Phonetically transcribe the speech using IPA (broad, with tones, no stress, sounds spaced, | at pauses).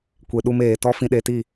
kʷ e˨ ɗ u˧ m eː˨ t ɔ˦ f ĩ˧ ɗ e˧ t i˦˨